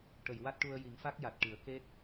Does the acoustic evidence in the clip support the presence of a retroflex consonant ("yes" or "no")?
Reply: yes